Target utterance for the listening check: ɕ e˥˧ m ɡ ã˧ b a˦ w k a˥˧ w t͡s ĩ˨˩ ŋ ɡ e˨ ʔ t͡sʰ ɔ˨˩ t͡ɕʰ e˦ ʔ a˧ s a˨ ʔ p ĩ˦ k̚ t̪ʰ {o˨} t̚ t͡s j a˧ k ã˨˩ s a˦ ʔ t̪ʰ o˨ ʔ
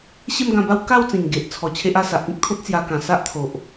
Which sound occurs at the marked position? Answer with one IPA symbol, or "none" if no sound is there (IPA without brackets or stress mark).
o˦